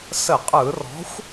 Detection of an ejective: present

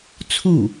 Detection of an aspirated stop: present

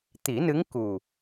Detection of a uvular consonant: absent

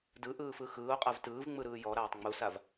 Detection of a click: absent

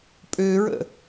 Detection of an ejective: present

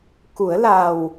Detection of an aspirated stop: absent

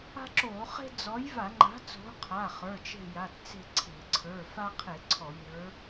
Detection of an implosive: absent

